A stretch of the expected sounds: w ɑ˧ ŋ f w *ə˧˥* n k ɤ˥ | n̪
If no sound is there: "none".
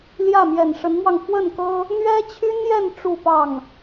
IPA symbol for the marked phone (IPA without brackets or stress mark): ə˥˩